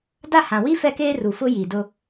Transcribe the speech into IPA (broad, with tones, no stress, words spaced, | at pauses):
da˦˨hã˨wi˦ fɛ˦keː˦ru˨fʊ˦ ji˨dʊ˦